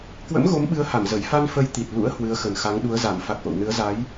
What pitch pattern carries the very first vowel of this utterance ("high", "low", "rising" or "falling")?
rising